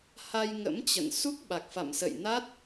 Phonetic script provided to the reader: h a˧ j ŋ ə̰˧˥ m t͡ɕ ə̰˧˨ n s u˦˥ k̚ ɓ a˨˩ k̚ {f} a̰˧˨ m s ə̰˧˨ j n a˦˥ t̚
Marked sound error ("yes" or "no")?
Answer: no